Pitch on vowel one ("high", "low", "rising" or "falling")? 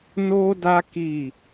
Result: high